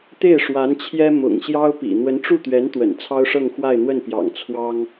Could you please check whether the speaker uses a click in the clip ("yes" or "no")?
no